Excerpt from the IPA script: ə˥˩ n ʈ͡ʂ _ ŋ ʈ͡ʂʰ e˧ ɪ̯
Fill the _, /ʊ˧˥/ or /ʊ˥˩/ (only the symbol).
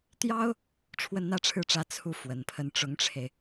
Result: ʊ˧˥